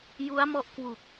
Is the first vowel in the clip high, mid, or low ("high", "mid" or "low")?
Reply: high